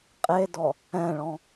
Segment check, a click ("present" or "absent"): absent